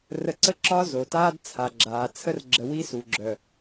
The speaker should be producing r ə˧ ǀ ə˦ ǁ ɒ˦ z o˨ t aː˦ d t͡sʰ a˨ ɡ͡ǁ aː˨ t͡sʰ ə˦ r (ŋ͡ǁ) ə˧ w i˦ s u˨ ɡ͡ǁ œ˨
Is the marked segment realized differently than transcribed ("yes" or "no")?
yes